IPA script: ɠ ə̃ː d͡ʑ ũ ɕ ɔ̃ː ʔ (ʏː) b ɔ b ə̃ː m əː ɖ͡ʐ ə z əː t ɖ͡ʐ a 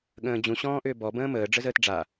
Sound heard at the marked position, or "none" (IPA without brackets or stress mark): ʏː